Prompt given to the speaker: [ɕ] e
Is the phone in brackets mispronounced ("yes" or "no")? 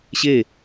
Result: no